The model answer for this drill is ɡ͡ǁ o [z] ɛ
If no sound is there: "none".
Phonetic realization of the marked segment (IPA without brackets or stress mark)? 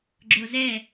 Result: z